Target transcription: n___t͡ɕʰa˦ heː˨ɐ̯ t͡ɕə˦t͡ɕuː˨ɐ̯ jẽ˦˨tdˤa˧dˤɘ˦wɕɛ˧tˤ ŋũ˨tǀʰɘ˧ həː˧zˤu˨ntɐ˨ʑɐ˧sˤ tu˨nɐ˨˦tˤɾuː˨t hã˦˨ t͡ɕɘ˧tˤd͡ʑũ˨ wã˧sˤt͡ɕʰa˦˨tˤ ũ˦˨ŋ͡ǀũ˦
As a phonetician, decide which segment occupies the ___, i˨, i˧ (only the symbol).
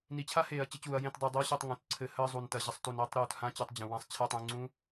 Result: i˨